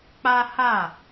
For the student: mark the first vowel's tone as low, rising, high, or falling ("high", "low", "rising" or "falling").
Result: high